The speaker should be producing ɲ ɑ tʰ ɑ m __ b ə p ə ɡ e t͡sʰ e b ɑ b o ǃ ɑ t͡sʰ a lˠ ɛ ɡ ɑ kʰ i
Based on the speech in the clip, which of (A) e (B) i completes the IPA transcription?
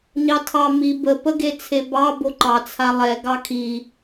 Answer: B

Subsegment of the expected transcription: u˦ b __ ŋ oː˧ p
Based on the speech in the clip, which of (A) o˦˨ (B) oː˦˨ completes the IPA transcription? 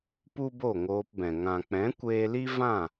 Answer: A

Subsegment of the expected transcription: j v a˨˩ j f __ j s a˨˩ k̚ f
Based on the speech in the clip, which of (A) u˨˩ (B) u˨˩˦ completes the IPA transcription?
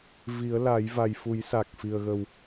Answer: B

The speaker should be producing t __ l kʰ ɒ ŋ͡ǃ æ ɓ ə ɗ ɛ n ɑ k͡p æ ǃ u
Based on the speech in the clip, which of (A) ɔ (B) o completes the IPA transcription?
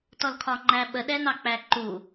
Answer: A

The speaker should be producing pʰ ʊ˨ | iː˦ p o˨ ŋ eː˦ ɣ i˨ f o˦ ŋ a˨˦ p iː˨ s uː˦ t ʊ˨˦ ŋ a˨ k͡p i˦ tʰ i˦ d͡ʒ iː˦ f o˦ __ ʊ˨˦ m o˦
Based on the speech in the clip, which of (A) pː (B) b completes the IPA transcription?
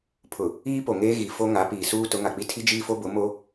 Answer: B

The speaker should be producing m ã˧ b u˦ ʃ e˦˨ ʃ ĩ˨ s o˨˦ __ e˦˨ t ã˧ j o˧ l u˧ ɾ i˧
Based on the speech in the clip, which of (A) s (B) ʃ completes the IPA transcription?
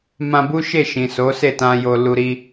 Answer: A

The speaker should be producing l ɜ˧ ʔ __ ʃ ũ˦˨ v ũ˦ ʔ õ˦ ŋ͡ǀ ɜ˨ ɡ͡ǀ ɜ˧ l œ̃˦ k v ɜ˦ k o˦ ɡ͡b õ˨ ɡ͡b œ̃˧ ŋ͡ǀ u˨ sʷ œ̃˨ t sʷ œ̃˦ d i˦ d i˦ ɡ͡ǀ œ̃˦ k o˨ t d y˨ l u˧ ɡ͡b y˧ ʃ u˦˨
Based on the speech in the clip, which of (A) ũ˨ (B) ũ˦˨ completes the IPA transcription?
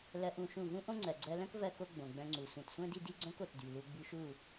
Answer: B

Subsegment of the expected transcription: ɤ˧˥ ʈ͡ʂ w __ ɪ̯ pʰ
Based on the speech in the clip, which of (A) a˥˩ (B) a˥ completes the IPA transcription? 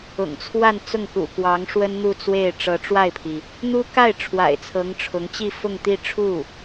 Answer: A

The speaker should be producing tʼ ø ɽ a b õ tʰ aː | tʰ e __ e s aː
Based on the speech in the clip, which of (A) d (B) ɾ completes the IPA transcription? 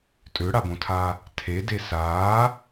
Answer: A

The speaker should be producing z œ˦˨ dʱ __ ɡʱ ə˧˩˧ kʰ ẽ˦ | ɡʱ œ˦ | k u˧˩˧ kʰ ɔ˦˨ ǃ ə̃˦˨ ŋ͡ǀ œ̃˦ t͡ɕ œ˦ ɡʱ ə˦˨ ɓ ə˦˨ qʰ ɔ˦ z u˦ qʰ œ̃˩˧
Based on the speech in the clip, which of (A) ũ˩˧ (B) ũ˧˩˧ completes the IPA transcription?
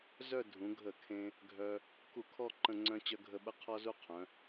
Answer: A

